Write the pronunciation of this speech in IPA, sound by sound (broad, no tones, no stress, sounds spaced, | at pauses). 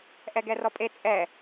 ʔ ɛ ɡ ɛ r ɔ pʼ e t͡sʼ ɛ